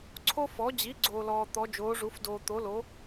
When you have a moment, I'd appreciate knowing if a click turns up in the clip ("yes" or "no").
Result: yes